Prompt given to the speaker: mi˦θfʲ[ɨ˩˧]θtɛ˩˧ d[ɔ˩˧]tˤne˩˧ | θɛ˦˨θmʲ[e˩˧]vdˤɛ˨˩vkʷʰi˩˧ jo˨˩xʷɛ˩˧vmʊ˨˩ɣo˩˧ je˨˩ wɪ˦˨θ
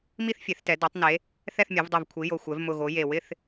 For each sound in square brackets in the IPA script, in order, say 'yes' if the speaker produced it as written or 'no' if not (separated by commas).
no, yes, yes